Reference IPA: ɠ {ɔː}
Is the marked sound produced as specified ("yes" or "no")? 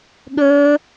no